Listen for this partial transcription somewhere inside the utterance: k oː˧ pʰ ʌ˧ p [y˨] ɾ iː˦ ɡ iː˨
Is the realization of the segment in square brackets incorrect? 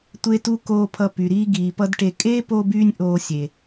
no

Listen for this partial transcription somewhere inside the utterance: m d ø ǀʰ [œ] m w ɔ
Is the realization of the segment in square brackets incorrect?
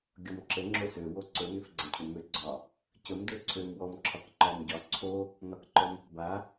yes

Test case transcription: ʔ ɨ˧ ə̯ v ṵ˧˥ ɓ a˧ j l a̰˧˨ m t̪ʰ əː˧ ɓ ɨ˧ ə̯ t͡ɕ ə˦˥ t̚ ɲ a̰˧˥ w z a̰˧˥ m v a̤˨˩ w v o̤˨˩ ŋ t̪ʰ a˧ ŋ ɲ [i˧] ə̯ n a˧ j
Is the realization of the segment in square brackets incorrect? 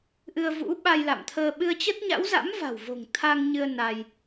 yes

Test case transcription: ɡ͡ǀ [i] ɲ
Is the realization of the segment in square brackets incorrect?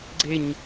yes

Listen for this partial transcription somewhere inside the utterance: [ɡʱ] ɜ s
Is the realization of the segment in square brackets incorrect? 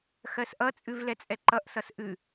yes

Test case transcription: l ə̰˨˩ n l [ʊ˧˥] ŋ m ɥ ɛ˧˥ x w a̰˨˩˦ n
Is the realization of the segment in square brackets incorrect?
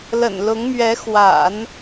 no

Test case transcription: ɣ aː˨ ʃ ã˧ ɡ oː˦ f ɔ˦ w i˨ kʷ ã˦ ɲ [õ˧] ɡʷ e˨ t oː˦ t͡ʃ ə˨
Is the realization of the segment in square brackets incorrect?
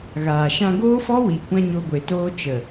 yes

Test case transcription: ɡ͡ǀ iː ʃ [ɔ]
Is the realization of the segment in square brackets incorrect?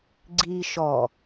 no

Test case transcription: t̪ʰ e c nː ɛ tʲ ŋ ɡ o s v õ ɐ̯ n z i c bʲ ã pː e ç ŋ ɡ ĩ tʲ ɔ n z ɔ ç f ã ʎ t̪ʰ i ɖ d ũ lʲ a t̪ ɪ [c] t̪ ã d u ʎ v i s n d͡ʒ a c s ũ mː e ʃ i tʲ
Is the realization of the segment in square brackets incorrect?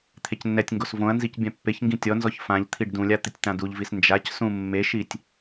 yes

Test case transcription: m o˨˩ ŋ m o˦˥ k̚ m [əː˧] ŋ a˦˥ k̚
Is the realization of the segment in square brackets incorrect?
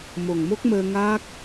no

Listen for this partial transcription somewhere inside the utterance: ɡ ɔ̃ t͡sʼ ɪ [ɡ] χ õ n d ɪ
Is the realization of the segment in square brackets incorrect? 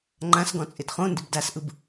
yes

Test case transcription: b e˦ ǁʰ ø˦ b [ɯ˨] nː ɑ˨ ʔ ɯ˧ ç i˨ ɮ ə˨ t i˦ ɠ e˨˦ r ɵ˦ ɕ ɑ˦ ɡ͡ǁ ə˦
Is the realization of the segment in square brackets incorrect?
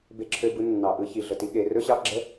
yes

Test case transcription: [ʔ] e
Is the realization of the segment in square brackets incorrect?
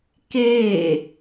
yes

